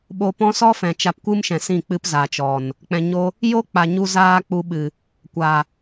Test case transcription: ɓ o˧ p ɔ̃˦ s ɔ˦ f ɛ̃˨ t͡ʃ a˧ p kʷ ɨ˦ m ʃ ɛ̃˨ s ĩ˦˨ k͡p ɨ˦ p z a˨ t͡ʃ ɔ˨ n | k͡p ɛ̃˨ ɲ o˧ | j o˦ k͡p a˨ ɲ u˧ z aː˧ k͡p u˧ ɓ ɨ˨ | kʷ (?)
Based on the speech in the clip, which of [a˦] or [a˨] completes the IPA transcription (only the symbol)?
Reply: a˨